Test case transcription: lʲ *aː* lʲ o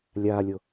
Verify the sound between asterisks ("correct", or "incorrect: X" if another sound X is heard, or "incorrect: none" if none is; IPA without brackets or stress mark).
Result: correct